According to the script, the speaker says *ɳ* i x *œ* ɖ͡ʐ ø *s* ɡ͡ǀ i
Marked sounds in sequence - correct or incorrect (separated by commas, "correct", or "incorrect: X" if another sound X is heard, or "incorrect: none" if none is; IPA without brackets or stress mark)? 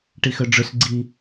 incorrect: ʈ, correct, correct